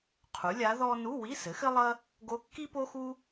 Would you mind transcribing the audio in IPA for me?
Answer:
qʰ u˩˥ lʲ a˧˥ ð ɔ˥ n u˧˥˧ w i˧˥˧ s ɘ˩˥ x ɘ˥ lˠ ɐ˥ | ɡ o˧˥ kː i˥ p o˥ x u˥

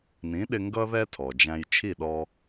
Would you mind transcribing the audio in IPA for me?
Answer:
n ĩ˩˥ ɗ ɪ˧ ŋ ɡ ʌ˥ ð ɛ˥ tʰ ɔ˩ d͡ʒ æ̃˧ j t͡ʃʰ i˥˩ ɗ ɔ˧

